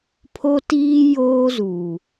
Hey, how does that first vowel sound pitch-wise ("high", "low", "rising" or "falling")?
high